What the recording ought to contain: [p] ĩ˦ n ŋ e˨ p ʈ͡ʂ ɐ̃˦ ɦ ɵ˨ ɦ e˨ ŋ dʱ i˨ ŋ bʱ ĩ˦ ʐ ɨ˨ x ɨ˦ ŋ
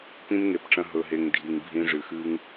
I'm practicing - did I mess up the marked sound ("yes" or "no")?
no